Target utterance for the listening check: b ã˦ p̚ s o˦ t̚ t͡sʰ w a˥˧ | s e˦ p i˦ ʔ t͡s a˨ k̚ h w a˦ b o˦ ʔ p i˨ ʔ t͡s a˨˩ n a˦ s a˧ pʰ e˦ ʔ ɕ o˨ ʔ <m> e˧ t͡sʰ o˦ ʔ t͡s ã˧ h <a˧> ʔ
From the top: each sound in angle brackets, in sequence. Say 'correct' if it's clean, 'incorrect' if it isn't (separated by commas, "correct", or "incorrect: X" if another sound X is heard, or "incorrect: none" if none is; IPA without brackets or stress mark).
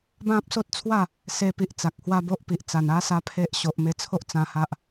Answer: correct, incorrect: a˦